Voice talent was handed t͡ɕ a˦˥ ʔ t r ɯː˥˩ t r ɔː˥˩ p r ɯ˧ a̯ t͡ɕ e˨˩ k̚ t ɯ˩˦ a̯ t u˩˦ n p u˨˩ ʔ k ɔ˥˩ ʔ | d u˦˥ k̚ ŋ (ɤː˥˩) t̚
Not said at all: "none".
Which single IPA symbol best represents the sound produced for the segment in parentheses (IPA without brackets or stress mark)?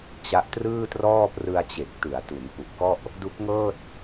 ɤː˥˩